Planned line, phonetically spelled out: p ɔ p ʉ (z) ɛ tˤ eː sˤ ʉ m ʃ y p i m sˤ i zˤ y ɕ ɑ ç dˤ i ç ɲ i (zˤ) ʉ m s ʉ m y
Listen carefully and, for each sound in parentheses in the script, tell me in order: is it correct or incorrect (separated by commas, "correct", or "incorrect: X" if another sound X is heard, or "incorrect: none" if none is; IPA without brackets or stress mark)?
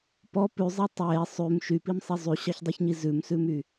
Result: incorrect: zˤ, incorrect: z